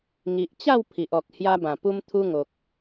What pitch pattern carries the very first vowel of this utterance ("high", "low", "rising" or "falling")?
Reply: low